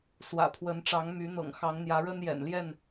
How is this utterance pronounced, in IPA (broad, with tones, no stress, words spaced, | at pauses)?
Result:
swä̰˨˩pʰwə˨˦nʈ͡ʂɑ˨˦ŋ my˨˦n̪ɤ̰˨˩ŋxɑ˨˦ŋ n̪jä˨˦ɻə˦njɛ̰˨˩nljɛ˥˨n